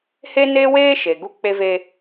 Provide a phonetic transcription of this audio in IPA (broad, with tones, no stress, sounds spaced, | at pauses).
h e˦ n eː˦ w eː˦ ʃ e˨ ɡ u˦ k͡p e˦ v e˦